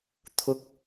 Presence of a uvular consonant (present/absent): absent